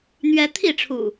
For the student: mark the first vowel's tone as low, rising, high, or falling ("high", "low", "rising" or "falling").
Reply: high